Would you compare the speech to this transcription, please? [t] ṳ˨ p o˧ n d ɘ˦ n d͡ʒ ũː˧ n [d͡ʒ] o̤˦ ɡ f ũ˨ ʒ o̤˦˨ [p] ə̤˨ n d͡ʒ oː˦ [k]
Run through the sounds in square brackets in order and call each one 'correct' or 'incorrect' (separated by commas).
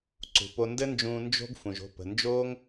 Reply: incorrect, correct, correct, incorrect